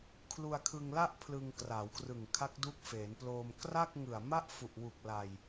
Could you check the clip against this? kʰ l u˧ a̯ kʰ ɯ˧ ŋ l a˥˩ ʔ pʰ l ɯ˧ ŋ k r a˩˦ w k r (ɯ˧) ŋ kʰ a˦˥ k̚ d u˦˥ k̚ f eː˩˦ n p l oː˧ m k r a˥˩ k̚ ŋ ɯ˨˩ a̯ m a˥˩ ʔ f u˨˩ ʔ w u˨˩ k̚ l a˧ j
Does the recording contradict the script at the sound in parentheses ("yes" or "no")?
yes